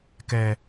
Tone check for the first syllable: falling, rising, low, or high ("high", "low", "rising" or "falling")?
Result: low